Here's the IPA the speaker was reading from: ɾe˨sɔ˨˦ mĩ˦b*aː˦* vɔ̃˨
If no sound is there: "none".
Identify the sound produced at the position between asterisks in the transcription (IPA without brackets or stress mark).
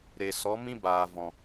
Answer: aː˨